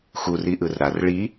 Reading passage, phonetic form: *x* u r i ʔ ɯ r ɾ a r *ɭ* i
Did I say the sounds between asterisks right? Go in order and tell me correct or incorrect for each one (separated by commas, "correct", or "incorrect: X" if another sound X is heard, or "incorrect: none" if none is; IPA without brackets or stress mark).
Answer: correct, correct